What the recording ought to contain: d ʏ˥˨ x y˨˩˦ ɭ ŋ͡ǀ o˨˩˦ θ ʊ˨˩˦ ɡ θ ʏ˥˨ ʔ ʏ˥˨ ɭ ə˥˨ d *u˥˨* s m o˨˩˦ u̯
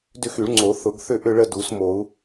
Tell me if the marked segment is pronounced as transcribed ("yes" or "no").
no